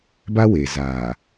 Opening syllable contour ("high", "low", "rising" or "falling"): high